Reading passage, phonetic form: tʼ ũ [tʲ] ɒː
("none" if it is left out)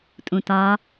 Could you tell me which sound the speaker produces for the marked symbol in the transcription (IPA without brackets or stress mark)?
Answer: t